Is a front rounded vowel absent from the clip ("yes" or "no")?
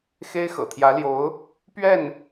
yes